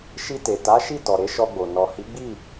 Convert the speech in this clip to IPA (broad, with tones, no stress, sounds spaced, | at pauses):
ʃ i˧ t e˨ t a˨˦ ʃ i˦˨ t ɔ˨ ɾ e˨˦ ʃ ɔ˧ ɡ͡b o˨ n ɔ˨ h i˨˦ ɡ͡b i˦˨